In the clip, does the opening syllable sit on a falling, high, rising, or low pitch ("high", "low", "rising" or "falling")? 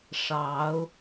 rising